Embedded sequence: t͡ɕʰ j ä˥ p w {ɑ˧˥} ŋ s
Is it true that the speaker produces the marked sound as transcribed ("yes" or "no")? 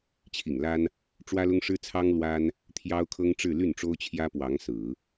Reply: yes